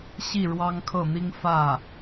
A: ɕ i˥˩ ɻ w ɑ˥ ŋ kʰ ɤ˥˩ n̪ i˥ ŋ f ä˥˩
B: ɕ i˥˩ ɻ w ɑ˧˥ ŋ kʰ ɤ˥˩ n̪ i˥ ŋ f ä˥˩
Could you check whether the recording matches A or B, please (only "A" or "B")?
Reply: A